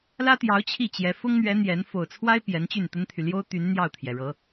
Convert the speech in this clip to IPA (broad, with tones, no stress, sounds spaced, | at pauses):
l ä˥ t̪ j ɑ˧˥ ʊ̯ t͡ɕʰ i˥˩ t͡ɕ j ɛ˧˥ f ʊ˥ ŋ n̪ ɥ ɛ˧˥ n̪ j ɛ˧˥ n f o˨˩ ʊ̯ t͡sʰ w a˥ ɪ̯ p j ɛ˧˥ n t͡ɕ y˥˩ n t̪ ə˥ n t̪ʰ y˨ l j o˥ ʊ̯ t̪ y˧˥ n n̪ j ɑ˥˩ ʊ̯ t̪ʰ j ɛ˩ ɻ ɤ˧˥